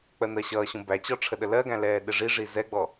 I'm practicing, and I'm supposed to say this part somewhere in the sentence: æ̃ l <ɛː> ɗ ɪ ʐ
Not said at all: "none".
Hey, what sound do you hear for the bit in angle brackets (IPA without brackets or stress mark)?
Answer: ɛː